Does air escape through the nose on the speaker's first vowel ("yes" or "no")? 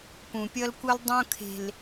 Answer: yes